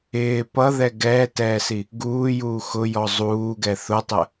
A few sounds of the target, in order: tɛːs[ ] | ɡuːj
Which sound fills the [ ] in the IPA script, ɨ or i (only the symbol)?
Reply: i